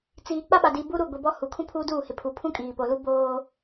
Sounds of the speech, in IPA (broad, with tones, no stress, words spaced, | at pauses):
t͡siː˨ k͡pa˦ɓa˨diː˨ bu˦ɾu˦˨ɡʷi˨bɔ˦ hu˨kʰũ˦ pʰuː˦duː˦˨ hɪ˨pʰu˨pʰũ˦ kʼiː˨ po˨lu˦ boː˦